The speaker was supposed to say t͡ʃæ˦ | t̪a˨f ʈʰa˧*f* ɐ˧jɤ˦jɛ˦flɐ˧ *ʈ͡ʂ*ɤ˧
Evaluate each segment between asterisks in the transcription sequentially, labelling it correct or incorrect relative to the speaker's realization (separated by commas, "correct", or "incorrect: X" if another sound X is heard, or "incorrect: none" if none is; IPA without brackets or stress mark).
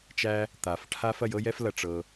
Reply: correct, correct